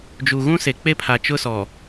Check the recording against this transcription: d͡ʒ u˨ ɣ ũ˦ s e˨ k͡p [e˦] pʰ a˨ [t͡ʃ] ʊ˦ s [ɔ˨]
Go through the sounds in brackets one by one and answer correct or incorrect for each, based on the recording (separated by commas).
correct, correct, correct